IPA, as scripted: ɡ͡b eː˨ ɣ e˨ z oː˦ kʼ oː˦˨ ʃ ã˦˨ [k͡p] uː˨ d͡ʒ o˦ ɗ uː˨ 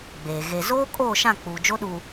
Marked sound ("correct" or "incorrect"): correct